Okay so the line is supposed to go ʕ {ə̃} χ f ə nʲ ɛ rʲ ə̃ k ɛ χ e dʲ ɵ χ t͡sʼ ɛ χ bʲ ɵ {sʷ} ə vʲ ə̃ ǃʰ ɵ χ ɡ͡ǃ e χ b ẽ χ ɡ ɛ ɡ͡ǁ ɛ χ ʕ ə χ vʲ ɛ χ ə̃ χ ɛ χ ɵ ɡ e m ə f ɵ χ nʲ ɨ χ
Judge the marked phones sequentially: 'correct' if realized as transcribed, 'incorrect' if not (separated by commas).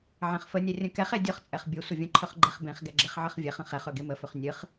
incorrect, correct